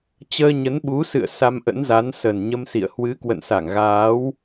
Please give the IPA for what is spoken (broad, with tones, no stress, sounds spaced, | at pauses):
t͡ɕ əː˧ ɲ ə˨˦ n ɓ u˨˦ s ɨ̰˧˨ ə̯ s a˧ m ʔ ə̰˧˥ n z a˨˦ n s ə˨˩ n ɲ ə˧ m s ḭ˧˨ ə̯ h w ɨ˨˦ k w ə̰˧˨ n s a˧˩ ŋ ɣ aː˨˦ w